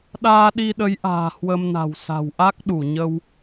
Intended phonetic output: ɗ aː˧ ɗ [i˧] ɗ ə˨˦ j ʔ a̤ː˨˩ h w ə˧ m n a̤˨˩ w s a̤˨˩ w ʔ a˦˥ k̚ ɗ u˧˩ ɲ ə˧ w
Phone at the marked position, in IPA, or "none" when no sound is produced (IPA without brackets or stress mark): i˧